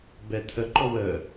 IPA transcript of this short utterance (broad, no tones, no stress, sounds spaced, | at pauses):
b ɛ tʰ ə ǃ ɔ w ə